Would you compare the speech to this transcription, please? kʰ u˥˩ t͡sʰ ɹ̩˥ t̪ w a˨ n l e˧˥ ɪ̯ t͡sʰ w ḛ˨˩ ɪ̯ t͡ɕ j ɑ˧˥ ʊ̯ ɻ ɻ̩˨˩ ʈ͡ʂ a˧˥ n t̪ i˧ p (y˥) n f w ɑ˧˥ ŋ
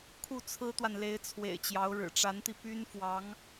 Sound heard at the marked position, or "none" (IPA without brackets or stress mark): y˥